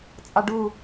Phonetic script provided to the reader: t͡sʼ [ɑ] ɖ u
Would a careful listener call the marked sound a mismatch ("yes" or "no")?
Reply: no